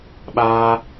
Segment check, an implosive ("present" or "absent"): present